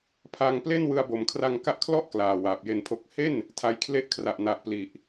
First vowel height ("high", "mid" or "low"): low